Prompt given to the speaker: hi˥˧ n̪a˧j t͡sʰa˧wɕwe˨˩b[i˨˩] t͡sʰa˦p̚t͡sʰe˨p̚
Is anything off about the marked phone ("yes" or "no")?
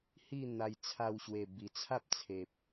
no